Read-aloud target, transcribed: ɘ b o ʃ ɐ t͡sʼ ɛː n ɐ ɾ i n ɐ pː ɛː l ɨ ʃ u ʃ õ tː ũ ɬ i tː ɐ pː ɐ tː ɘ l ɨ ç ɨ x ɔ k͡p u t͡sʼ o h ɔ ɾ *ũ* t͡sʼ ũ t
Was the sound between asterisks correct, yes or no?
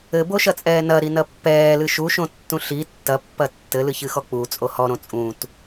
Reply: no